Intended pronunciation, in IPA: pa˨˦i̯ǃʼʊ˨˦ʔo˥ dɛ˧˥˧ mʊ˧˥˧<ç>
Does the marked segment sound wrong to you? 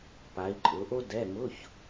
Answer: no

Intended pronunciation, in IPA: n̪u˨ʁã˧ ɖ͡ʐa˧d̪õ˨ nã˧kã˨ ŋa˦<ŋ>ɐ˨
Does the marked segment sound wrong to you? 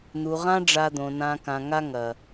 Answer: no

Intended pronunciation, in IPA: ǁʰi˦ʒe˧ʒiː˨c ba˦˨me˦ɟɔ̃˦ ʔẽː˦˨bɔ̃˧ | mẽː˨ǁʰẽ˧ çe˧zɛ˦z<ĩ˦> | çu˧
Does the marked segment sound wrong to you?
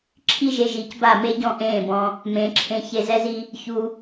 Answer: yes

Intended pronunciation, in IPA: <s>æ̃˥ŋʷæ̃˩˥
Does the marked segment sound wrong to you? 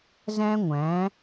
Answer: yes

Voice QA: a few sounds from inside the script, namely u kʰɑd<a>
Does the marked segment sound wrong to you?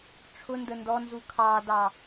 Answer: yes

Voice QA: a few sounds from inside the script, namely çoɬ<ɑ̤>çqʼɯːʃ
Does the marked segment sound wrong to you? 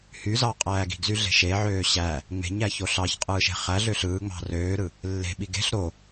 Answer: yes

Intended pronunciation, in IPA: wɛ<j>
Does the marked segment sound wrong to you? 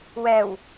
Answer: yes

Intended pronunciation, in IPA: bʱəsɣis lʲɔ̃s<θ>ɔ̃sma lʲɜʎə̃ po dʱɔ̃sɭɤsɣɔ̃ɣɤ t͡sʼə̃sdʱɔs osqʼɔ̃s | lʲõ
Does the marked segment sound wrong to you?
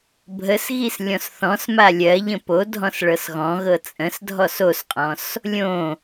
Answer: no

